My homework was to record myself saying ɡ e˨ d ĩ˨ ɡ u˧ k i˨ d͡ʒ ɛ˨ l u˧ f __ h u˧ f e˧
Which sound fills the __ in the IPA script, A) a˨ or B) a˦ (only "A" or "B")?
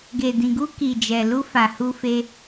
A